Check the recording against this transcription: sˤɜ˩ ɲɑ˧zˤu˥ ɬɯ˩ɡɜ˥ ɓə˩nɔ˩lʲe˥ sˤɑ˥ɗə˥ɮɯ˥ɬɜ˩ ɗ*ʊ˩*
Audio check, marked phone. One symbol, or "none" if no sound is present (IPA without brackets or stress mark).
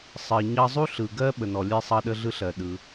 ɯ˩